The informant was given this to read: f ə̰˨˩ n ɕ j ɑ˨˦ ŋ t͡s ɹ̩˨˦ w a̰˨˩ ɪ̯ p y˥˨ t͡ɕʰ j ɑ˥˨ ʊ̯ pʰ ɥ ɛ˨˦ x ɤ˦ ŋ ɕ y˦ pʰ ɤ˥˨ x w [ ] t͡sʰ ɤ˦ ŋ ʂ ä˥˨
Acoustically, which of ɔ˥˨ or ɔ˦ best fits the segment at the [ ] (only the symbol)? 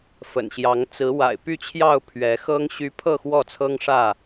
ɔ˥˨